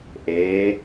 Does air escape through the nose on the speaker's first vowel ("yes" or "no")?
no